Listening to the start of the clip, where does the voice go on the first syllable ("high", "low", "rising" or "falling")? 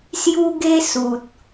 high